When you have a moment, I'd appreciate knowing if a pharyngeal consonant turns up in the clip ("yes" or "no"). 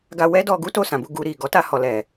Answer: no